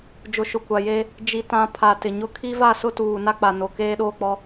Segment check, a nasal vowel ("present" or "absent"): present